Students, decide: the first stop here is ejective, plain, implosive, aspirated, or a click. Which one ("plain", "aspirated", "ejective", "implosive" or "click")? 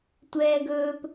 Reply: plain